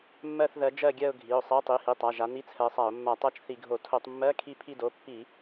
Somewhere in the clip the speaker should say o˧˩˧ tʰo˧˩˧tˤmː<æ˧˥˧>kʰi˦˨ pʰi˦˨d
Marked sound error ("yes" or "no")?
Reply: yes